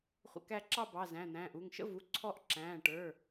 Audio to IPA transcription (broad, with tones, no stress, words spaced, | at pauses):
χʷə̰˧kæ˧ǁɑ˥˧ bɑ˩˧˩zæ̃˩˧˩n̪æ̃ː˩˧˩ʔu˩˧˩ŋ ʃə̰˥˧vu˩˧˩ ǀʰɔ˥˧ʔ ǁæ̃ː˩˧˩ʈə˞˩˧˩